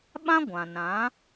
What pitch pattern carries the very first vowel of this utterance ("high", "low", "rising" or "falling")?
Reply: high